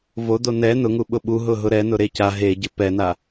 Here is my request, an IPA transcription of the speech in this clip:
vodo nɛ nʊŋuɓʊ ɓuɦʊɦʊ ɾɛnʊɾe ca ɦeɟɪ pɛna

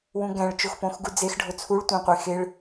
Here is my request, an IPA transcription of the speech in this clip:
wũɡæ̃ɭ t͡ʃoxpõxɡud͡zex ɖʱot͡sʰuɭ tʷæ̃qʷe xeɭ

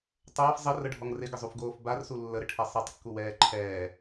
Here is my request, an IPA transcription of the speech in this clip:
tˤɐːf zˤərəɖʱɔŋ rɪɡəzˤufɡoːf barsu lːəɾɪʈʰɛ sˤɛtˤkːuwɛː ǃʰɛː

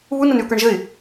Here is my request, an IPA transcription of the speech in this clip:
βu nənyʊ̯kə˞ɳʒəɪ̯

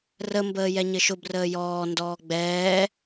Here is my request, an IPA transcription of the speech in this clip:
rəmbəː jɛɲɘʃʊbrəː jɔːndɔː ɡ͡bɛː

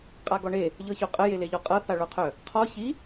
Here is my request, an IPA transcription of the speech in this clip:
qʼaɡɔɳe | ʎɤçoqʼə jeleʎɔqʼɤ θaɭoqʰœ | qʰɔ çi

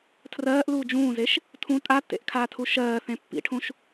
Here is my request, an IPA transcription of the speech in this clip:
tʰrɜːʔluː d͡ʒũːzeʃ | tʰũ tʼatːḛʔkʰaːtʰu ʃɜːθẽ pːḭʈʰũʃ

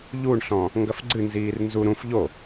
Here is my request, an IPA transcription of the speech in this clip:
ʎuɳɬɔ̃ | ŋɡɐfɡ͡ǀɨnziːr nzu ɾũf ʎo

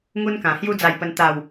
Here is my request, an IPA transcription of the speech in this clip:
ŋu˦nkã˨˩hju˦ d͡za˥˧jpə˦n t̪a˥˧w

